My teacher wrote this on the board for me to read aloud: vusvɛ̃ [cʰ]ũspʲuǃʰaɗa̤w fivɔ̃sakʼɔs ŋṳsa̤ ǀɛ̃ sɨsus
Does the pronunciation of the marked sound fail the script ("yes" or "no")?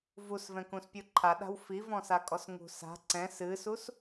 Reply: yes